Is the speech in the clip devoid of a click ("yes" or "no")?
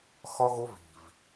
yes